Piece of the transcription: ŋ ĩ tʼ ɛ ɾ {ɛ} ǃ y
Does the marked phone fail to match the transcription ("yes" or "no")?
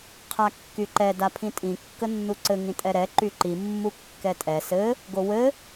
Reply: no